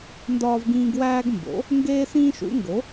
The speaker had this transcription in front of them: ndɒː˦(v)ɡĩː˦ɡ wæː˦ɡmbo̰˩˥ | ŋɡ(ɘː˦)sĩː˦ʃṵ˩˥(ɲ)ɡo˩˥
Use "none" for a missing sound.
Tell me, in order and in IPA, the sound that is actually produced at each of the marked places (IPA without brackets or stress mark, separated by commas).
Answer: v, eː˦, ŋ